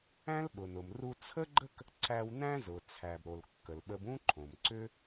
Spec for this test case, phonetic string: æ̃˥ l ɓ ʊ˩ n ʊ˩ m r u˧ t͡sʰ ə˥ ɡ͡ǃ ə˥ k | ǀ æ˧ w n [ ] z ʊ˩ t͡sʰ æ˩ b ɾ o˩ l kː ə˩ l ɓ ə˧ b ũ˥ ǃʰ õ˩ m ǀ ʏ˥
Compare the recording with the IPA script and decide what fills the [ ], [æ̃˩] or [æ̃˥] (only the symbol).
æ̃˥